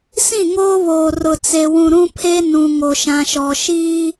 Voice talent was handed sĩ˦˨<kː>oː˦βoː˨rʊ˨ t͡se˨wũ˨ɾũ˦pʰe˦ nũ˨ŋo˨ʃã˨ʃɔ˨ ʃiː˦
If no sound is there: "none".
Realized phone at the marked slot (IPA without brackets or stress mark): ŋ